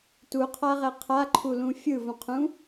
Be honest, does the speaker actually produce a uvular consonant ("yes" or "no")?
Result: yes